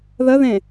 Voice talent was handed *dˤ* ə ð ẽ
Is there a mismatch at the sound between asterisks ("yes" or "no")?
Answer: yes